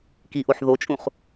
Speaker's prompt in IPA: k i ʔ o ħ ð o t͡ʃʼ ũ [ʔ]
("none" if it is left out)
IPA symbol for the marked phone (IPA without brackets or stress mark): χ